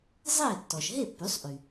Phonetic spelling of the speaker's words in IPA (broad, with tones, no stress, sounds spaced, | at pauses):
zˤ eː˥˩ tː ɔ˩ ʃ ɦ e˥˩ pː y˩˥ sˤ ʔ y˩